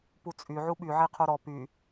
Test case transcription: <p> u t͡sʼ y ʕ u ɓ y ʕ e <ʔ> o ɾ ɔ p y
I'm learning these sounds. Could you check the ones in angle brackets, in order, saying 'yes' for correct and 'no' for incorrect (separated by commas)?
yes, no